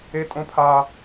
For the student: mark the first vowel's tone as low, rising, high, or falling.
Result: high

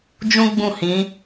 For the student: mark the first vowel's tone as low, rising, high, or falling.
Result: high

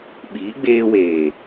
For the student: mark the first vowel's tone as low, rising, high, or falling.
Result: rising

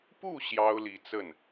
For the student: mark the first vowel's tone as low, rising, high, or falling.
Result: falling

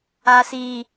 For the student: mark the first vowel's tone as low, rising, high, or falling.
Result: high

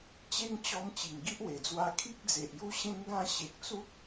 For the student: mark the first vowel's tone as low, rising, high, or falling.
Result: high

